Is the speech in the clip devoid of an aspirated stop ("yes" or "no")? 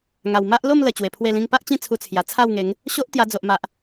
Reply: no